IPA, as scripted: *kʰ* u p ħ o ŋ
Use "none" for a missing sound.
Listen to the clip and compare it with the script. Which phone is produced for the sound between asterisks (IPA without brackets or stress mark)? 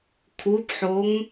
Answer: kʰ